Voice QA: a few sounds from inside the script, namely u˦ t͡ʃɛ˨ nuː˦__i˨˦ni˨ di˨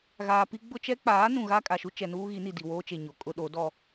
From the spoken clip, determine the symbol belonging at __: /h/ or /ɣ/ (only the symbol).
ɣ